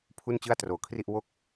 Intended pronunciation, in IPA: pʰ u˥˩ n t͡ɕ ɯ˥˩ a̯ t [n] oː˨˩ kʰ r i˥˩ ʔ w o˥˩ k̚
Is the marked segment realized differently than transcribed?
yes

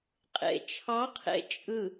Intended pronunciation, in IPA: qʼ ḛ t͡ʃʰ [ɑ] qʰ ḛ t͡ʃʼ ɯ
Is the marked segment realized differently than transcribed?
no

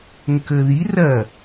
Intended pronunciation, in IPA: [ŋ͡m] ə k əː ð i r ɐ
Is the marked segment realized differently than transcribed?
yes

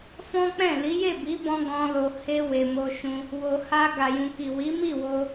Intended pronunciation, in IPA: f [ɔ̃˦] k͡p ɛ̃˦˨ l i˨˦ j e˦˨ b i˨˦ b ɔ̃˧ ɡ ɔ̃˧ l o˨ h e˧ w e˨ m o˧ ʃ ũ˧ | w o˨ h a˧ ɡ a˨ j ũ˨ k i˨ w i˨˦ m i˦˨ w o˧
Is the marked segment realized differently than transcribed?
no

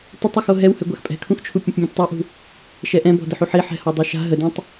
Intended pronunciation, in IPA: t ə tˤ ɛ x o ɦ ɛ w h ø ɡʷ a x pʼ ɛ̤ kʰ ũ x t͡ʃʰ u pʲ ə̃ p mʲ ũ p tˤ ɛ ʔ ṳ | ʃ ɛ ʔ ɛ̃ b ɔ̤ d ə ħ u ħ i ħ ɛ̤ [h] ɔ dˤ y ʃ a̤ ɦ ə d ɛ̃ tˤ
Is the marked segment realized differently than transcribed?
no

